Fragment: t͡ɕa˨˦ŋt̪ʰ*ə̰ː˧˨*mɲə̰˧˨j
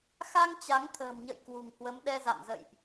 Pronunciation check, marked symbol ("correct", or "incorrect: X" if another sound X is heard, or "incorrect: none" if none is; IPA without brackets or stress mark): incorrect: ə̤ː˨˩